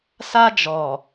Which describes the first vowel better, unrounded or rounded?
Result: unrounded